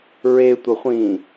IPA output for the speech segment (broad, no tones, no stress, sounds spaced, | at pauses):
ɹ e tʷ ʌ χʷ ĩː